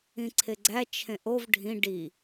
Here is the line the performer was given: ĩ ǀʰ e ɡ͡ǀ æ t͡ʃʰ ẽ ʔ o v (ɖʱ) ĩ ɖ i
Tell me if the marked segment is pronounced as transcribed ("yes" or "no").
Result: yes